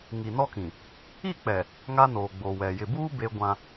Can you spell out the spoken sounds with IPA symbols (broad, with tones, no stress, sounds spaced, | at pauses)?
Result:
ŋ i˨ n ɔ˦ k ĩ˨ | i˦˨ k͡p ɛ˨ | ŋ a˦ n oː˨ ɡ͡b o˨ w ɛ˨ j ɪ˨ b uː˦ b e˦ ɡʷ ã˦